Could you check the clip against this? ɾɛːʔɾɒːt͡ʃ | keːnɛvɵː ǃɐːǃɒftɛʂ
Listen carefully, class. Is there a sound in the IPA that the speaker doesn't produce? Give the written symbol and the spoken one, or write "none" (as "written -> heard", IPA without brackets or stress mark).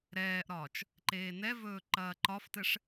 k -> ǃ